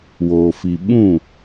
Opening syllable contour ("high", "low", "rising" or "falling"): low